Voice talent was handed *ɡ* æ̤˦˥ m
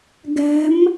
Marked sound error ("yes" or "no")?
no